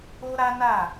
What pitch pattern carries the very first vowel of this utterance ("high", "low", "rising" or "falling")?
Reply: high